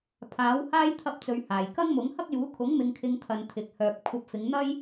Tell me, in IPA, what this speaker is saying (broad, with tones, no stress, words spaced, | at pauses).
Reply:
pʰaː˨˥whaː˥j t̪ʰɐ˧p̚t͡sɵ˨ɥ haː˨˩jkɐ˥ŋmʊ˨˥ŋ hɐ˥k̚juː˨˥ kʰʊ˨˥ŋ mɪ˧ŋkʰɪ˧ŋt̪ʰɐ˨n t̪ʰɪ˨k̚ hœː˨p̚kʷʰɐ˧p̚fɪ˨˧ŋn̪ɐ˥j